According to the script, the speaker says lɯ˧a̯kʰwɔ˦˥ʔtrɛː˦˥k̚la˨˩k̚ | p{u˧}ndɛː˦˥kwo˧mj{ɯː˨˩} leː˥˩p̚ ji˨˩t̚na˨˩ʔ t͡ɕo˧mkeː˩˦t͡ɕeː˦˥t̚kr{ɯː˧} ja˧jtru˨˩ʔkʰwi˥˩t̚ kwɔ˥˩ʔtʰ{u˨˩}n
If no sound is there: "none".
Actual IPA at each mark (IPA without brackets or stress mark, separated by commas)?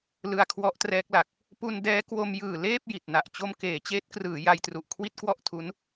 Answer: u˧, ɯː˨˩, ɯː˩˦, u˦˥